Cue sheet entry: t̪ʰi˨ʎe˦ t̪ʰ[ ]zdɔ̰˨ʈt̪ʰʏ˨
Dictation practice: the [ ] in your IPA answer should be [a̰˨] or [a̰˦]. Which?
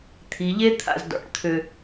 a̰˨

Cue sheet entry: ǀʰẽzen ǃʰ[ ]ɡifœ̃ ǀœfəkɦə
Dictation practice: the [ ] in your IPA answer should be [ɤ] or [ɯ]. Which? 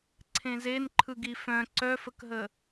ɯ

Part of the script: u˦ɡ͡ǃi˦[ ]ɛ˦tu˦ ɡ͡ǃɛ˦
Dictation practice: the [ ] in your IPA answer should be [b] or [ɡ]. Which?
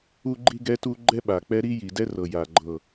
ɡ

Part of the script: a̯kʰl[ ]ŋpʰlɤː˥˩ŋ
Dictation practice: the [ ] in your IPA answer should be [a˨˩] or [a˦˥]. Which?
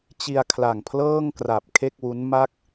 a˨˩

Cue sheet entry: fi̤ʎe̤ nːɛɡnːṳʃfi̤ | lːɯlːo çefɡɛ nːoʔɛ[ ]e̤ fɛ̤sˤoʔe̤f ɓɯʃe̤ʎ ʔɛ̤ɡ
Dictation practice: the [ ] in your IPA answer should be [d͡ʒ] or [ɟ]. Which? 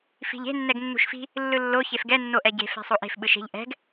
ɟ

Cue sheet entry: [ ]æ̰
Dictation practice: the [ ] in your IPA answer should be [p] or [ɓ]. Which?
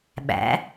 ɓ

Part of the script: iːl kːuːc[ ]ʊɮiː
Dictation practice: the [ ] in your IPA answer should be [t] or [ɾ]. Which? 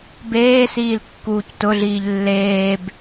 t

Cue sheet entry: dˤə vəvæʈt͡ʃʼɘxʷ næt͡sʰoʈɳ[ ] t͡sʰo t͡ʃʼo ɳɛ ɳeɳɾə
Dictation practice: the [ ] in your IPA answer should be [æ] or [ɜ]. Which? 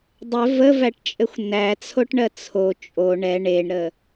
ɜ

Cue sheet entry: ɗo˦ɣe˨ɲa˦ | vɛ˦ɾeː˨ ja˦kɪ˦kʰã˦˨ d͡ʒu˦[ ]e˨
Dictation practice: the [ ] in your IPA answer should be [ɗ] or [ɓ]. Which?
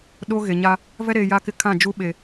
ɓ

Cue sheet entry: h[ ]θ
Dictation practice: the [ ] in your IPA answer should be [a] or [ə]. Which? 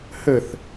ə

